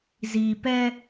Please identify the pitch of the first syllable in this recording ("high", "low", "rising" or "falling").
low